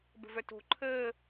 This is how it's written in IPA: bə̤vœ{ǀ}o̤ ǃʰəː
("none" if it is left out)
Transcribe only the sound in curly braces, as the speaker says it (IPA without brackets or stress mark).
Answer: t